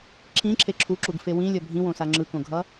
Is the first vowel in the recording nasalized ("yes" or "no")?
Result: yes